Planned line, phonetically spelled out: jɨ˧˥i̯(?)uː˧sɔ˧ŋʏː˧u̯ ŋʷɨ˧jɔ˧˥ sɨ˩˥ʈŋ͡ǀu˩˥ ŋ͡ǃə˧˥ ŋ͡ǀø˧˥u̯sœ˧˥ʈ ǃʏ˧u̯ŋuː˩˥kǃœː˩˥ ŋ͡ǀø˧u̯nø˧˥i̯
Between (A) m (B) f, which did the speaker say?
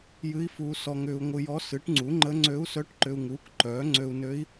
B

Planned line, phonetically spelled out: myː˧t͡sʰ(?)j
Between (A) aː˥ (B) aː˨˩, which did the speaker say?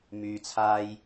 A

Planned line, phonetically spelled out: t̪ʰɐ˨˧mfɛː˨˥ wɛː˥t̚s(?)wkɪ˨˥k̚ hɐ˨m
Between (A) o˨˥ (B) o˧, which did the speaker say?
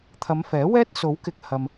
A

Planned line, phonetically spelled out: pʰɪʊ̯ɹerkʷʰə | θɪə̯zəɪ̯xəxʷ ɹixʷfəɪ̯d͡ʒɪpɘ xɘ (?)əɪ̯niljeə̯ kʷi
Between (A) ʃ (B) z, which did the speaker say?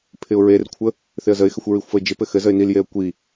B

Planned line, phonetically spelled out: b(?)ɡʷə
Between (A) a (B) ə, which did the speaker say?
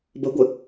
B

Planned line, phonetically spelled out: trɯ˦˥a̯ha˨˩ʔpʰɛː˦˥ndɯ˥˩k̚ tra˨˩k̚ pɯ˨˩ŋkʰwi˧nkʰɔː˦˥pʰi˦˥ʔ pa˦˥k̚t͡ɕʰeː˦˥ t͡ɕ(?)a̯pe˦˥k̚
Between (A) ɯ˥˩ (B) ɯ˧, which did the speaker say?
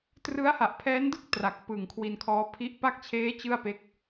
A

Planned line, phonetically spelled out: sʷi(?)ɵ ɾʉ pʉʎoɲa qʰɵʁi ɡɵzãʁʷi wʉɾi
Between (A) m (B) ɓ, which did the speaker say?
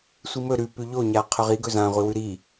A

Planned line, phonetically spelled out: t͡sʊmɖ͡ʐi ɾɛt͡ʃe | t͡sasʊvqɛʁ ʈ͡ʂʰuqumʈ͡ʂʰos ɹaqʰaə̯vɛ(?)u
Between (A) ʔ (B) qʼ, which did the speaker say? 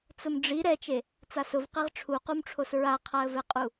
B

